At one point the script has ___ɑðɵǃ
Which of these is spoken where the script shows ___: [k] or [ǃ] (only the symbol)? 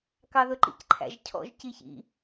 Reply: k